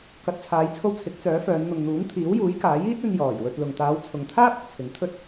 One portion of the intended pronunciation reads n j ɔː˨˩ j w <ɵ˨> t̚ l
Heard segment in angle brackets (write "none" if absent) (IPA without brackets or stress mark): ɵ˧